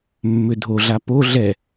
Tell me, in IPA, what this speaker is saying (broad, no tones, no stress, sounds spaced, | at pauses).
mː ʏ dʱ o ɮ a p o ɮ ɛ